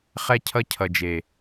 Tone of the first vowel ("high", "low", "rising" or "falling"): high